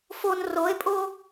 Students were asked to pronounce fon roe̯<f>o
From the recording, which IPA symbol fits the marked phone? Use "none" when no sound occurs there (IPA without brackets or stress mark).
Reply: pʼ